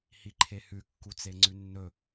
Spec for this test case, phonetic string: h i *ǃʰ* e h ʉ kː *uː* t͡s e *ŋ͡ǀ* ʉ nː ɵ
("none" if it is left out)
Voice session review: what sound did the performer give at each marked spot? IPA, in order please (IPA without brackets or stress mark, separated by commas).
ǃʰ, u, ŋ͡ǀ